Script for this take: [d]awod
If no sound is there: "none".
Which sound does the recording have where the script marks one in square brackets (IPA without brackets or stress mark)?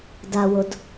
d